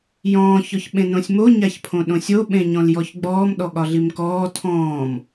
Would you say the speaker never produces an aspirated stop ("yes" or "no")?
no